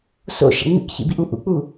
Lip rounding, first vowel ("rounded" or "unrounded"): rounded